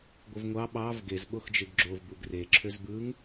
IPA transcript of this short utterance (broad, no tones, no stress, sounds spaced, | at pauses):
ɡʷ ɯ v ŋʷ ɑ ɓ ɑ v ɡ e z ɓ o x d͡ʒ e ɡ ɡ͡ǁ o v b u ɡ r e ǁʰ ø z b ɯ ŋ